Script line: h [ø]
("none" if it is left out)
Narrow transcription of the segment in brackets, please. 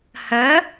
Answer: ə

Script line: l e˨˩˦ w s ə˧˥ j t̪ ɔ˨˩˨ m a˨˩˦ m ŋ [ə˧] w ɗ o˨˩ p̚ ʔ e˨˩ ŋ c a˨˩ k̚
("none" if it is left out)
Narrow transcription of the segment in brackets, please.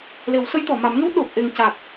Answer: ə˧˥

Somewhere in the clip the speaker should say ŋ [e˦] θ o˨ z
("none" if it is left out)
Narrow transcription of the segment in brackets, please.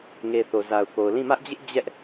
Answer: e˨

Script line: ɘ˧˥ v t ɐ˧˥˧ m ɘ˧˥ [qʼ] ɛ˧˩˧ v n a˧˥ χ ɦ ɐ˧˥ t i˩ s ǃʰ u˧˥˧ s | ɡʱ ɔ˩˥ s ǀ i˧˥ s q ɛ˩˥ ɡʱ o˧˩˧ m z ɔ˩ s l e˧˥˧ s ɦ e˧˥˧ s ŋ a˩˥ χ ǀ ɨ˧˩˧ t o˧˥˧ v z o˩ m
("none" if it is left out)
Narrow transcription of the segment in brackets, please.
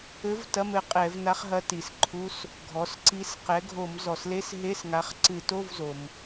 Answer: qʼ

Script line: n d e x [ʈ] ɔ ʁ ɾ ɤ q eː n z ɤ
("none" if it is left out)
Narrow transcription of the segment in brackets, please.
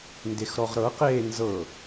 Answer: ɾ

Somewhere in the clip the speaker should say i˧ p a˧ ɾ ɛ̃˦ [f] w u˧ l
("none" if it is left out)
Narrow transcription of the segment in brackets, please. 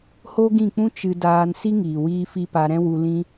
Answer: none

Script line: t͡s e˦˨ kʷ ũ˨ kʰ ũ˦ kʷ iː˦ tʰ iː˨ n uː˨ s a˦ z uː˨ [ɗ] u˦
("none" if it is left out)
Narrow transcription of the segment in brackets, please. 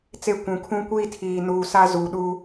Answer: ɗ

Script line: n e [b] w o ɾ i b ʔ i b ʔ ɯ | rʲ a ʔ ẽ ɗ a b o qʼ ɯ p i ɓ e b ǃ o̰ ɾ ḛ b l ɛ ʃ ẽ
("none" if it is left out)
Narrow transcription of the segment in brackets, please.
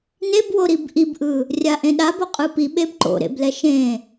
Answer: b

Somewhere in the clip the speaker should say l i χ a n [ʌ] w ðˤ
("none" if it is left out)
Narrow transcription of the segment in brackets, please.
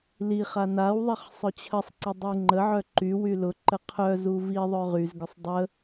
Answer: a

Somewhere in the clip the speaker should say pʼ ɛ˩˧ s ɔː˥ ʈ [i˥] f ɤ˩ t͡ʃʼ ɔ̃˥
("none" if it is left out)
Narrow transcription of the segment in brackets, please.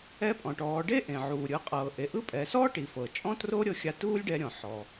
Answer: i˩˧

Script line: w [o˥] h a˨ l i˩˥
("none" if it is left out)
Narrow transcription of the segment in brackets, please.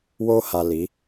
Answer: o˥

